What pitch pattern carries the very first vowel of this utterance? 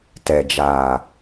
low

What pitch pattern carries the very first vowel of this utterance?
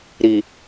low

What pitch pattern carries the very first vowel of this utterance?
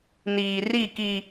low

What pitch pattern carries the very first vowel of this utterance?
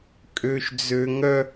high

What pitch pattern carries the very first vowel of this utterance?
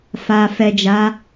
low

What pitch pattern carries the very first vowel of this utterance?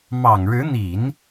low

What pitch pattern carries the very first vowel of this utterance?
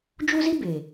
high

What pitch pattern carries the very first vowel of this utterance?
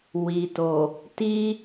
low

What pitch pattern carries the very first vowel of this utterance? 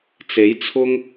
rising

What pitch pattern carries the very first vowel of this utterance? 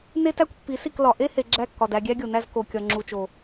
high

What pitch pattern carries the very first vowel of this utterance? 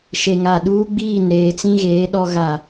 low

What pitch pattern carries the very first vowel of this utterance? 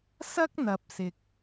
high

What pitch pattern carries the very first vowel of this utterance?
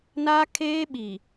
high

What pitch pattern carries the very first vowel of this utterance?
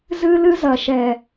high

